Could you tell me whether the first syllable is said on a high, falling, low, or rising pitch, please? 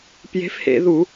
rising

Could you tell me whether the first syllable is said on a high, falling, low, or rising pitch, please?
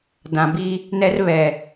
low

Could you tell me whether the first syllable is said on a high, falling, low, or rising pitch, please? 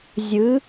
rising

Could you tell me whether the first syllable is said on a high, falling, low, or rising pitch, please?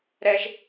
high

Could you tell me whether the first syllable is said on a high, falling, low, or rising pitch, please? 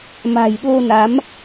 low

